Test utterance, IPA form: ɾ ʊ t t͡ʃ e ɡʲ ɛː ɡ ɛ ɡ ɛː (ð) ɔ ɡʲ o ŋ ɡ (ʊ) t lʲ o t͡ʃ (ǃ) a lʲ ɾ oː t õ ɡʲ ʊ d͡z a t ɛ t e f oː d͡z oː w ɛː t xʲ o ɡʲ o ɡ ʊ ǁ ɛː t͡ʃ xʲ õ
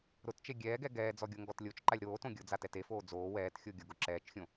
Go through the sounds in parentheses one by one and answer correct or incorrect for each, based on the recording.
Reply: incorrect: d͡z, incorrect: ɔ, correct

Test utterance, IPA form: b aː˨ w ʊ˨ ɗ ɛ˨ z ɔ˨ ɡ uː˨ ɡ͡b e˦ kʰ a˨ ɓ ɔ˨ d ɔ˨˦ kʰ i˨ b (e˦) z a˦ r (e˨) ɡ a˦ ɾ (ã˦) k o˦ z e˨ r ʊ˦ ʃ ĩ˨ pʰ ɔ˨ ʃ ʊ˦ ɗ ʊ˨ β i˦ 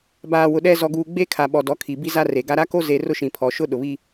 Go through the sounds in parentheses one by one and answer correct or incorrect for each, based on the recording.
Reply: incorrect: i˦, correct, incorrect: a˦

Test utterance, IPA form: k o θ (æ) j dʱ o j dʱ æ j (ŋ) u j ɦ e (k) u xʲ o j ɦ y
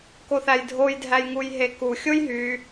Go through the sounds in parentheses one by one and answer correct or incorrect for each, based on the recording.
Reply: correct, correct, correct

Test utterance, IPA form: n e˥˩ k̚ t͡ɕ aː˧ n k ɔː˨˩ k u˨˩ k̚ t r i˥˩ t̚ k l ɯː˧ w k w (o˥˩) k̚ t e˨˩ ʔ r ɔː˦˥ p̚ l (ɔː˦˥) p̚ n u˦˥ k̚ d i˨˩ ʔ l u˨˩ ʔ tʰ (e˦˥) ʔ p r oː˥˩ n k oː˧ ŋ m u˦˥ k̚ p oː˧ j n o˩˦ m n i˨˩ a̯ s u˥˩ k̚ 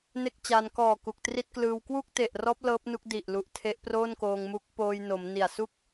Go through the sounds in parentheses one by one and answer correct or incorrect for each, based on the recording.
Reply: incorrect: u˥˩, incorrect: ɤː˦˥, correct

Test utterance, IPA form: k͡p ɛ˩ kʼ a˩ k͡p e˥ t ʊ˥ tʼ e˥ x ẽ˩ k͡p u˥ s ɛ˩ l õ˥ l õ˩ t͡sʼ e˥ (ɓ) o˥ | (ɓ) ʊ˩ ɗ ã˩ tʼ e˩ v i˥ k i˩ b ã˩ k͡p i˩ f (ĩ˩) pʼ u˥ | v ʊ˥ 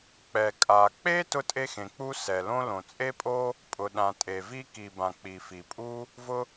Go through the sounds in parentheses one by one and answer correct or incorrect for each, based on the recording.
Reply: incorrect: pʼ, incorrect: pʼ, incorrect: i˩

